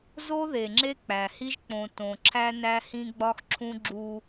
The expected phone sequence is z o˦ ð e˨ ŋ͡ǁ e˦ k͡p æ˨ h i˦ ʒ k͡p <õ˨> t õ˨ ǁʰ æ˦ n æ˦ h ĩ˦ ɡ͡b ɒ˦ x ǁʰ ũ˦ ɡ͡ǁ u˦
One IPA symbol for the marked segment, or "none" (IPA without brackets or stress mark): õ˨